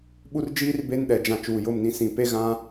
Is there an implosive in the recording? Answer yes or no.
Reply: yes